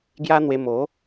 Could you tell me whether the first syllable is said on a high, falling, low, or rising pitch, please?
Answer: high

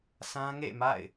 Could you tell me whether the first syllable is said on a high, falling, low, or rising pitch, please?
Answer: high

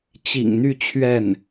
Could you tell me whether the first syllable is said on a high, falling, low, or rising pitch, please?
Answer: low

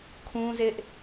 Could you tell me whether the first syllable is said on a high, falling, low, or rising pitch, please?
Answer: high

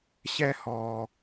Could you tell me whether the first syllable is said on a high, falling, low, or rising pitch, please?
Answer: high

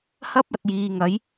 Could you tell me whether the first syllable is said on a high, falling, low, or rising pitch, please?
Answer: high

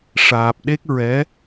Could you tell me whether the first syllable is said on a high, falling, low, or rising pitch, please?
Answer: low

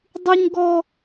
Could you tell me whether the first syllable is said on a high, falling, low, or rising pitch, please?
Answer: high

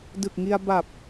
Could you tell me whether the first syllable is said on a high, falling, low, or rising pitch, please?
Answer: low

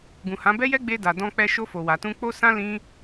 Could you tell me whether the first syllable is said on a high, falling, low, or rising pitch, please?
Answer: low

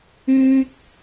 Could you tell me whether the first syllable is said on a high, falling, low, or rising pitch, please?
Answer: high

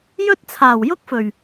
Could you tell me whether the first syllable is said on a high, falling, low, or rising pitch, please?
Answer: high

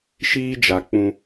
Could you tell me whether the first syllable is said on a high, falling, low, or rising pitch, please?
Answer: high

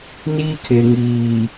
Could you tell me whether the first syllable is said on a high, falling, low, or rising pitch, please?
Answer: high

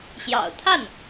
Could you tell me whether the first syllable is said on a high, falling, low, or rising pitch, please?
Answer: low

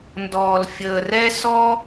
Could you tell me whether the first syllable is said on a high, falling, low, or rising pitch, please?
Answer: low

